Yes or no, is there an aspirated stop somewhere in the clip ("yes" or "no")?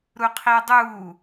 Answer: yes